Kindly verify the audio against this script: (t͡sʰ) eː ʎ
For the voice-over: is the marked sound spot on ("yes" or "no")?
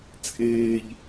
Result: no